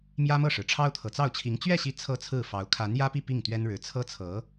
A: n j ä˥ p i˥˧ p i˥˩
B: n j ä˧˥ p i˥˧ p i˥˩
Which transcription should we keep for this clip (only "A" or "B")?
A